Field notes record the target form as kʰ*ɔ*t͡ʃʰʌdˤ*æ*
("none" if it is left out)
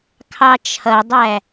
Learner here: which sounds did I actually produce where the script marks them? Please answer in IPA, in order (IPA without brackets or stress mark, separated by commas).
ɑ, æ